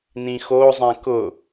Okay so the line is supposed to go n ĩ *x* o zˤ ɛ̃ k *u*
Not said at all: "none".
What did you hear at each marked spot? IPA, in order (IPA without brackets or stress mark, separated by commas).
x, ʊ